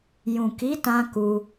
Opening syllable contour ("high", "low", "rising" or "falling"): low